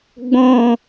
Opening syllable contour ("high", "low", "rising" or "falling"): falling